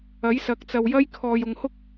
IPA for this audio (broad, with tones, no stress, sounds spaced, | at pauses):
ɐ˨˥ j s ɐ˨˥ k̚ t͡s ɐ˨ w j ɐ˥ j kʰ ɔː˨ j ʊ˨ ŋ h ʊ˥ k̚